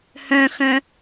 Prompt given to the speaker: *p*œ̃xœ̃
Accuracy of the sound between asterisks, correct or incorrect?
incorrect